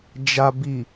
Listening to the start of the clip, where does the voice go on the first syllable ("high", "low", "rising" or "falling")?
low